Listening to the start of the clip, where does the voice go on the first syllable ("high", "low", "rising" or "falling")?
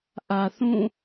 low